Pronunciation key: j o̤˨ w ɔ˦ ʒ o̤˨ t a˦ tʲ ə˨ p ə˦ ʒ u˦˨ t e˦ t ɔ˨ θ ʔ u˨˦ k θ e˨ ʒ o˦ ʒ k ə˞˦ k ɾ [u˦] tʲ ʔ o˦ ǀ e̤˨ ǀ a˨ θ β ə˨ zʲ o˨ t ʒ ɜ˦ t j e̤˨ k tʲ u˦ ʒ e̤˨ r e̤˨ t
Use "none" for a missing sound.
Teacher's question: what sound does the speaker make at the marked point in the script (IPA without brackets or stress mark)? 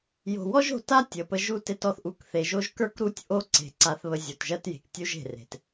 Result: u˦